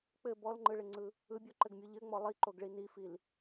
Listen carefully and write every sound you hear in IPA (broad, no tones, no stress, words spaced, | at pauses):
k͡pɘ bɔlŋ͡ǃɯɭɪŋ͡ǀɯ | ɯbʲɔǃɘɡmʲo ʎɘŋ͡mɔ lˠiǃoɡɭi nifil